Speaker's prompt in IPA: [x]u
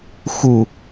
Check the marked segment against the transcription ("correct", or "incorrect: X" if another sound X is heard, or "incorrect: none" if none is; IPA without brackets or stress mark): correct